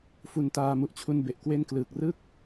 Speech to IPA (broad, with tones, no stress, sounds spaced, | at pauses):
f u˧ n t aː˧ m u˨˩ ʔ t͡ɕʰ u˧ n b e˨˩ ʔ k w e˥˩ n k l ɯː˨˩ k̚ r ɯ˥˩ k̚